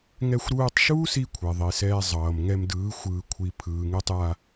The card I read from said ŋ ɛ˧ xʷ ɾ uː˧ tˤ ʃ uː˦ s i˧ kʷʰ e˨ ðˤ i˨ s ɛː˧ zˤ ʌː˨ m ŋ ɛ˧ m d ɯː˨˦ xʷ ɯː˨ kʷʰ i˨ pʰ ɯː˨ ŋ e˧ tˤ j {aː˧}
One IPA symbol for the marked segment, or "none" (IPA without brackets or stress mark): a˧